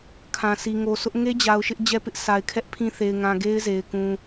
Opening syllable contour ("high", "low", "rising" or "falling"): low